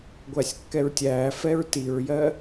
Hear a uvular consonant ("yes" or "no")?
no